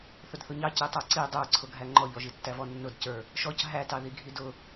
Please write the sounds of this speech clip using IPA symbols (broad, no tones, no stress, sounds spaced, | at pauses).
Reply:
θ ʊ d θ ʊ ɲ ɑ c i tˤ ə˞ ǀ i dˤ ə˞ ǀʰ ʊ ɡʱ æ ŋ͡ǃ ɔ ʎ ɔ ʒ i tː æ v ɔ nː ʊ d c ə˞ | ʃ ɔ c ɦ æ t ɑ ð i ɡʱ i d ʊ